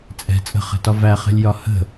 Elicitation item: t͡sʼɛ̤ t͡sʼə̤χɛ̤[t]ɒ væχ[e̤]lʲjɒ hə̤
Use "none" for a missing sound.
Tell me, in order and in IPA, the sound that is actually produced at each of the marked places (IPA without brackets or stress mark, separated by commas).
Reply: t, ɛ̤